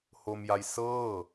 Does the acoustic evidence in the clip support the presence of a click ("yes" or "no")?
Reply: no